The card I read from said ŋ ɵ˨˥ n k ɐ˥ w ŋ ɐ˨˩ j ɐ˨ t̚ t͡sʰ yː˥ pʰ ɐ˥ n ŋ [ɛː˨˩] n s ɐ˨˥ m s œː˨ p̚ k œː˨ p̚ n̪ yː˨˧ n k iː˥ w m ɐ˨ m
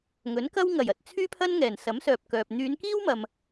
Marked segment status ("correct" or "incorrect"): correct